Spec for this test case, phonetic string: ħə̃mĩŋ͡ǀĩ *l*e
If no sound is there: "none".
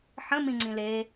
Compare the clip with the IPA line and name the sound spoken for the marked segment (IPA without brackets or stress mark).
l